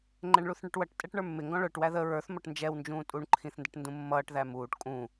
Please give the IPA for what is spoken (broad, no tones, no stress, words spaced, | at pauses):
ŋ͡ǃɛɳɭuθɳɛʈwʌʈ tʼɛʈɳə˞mːɪ ŋɡɔ̃ɭə˞ʈ wæðə ɹə˞θ mɔʈnd͡ʒɛw nd͡ʒũːtʼuɳ ǃʰĩθndəʈndũmːʌːʈ ðæmuːʈ kʼũ